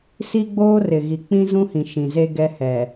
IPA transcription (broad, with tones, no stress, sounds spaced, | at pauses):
s i˦ ɡ͡b oː˦ r ɪ˨ ɣ i˨ k͡p ĩ˦ z ũ˦ h ĩ˨ ʃ ĩ˨ z e˦ ɡ ɛ˦ h ɛ˨